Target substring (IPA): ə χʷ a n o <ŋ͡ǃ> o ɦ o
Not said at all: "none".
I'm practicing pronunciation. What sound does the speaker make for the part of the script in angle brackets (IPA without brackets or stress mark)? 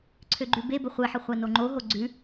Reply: ŋ͡ǃ